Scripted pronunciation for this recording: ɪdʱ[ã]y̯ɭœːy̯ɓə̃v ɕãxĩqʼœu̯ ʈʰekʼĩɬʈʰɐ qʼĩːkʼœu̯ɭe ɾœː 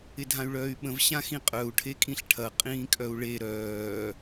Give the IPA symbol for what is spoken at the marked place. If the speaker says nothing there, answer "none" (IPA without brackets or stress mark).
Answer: ã